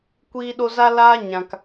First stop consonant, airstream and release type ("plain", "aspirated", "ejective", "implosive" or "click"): plain